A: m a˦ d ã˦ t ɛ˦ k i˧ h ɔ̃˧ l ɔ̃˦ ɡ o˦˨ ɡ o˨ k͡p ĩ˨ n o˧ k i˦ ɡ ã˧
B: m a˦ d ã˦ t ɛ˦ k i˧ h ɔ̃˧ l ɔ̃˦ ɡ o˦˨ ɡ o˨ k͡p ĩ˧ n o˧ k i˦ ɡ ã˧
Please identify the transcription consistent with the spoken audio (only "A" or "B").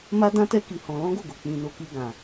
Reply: B